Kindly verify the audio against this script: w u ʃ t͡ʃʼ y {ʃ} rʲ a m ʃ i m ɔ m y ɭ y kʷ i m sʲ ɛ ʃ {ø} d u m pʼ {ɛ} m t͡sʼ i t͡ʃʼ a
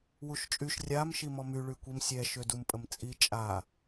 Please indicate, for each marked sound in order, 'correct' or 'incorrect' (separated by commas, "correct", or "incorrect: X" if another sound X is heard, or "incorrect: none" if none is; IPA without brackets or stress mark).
correct, correct, incorrect: ə